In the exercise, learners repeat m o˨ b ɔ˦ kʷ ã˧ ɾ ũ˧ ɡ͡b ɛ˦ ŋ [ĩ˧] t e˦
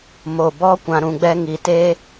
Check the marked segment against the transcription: incorrect: i˧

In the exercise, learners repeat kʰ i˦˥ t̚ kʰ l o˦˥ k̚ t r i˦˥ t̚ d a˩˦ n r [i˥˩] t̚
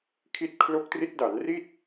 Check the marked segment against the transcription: correct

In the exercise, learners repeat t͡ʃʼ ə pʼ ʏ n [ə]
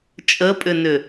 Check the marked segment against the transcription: incorrect: ʏ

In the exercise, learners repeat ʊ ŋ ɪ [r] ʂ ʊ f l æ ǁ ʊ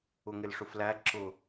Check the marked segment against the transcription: incorrect: l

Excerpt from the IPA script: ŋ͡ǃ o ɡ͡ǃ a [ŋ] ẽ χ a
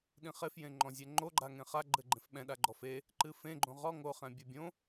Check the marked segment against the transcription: correct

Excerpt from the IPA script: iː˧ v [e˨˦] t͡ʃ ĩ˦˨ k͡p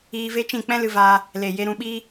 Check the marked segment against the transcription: incorrect: e˦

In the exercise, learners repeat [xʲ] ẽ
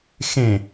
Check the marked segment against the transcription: incorrect: x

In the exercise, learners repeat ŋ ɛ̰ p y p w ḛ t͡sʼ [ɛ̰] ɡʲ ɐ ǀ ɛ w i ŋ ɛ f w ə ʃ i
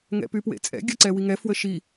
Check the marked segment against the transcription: correct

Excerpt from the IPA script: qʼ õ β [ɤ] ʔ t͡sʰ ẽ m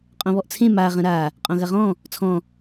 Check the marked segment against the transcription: incorrect: ɔ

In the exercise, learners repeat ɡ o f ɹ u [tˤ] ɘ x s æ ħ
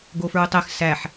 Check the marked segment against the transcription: correct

